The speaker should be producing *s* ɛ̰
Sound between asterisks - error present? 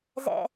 yes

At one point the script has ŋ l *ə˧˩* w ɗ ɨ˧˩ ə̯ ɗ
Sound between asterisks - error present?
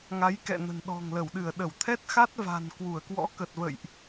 no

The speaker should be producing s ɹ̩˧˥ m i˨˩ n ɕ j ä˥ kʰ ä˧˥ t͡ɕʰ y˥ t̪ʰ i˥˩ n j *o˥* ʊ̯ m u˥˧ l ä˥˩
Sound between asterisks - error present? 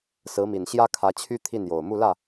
yes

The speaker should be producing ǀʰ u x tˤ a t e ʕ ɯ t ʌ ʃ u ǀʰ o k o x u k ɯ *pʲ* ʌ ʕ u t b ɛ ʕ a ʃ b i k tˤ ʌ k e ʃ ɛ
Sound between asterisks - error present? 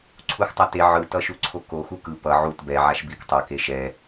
yes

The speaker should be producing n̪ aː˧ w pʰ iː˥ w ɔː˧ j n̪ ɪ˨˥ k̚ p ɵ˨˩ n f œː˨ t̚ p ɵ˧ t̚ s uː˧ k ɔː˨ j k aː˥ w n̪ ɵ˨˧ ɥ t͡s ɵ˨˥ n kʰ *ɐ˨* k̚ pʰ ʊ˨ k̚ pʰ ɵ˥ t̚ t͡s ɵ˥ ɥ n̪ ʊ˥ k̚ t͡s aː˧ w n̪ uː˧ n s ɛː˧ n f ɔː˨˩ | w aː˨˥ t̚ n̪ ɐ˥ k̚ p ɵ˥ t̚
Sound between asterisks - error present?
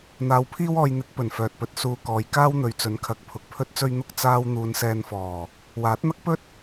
yes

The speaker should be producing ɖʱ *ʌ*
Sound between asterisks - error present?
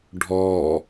yes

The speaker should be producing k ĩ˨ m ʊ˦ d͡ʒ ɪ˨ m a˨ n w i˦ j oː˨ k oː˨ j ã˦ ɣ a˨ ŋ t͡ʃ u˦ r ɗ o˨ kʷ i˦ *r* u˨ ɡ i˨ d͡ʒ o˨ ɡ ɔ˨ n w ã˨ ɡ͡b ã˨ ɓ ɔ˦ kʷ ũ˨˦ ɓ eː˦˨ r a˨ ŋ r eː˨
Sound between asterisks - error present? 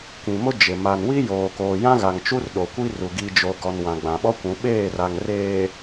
no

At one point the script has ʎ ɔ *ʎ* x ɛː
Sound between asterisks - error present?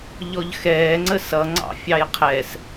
no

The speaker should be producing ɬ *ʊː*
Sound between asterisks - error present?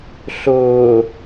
no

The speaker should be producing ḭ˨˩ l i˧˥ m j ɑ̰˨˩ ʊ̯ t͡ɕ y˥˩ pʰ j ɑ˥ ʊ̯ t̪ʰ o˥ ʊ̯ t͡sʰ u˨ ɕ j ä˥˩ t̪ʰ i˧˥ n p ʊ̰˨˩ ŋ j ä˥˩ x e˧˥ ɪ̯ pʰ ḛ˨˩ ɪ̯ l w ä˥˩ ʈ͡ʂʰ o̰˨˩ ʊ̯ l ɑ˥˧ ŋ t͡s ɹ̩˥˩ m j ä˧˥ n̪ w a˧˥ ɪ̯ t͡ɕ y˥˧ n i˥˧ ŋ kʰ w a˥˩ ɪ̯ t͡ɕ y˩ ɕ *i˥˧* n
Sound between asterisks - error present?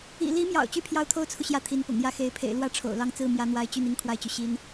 yes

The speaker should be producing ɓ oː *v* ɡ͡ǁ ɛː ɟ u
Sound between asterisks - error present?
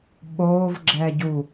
no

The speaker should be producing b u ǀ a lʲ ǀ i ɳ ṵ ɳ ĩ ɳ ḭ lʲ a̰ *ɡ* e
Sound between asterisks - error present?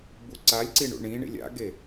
no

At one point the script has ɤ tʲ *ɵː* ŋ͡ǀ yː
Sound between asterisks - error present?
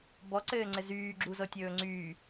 no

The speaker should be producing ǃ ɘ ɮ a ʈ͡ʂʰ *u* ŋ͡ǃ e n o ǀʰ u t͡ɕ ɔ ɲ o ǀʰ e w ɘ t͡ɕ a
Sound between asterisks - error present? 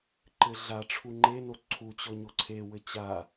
no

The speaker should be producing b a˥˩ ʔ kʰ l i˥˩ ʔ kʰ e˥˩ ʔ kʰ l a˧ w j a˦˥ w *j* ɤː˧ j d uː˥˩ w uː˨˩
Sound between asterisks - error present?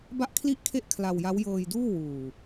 no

